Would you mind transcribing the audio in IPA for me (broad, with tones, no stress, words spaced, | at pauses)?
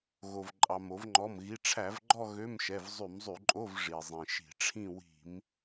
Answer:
ɣo˩v ǃʼɑ˩mo˧˩˧vŋ͡ǃɔ˩˧˩mɣi˩˧˩ ʈ͡ʂʰæ˧˩˧vɡ͡ǃɔ˥˧ ɣø˧˥˧mʃɛ˩˧˩v zˤy˧˩˧mzˤy˧˩˧ǃʼo˧˥˧v ʐi˩zˤĩ˩ʃi̤˧˩˧ʈ͡ʂʰĩ˥˧ wi̤˧˩˧m